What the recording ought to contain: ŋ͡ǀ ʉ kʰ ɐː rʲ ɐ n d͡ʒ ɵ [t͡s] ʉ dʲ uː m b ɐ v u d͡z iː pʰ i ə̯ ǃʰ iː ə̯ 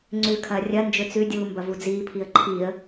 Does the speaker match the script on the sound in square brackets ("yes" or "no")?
yes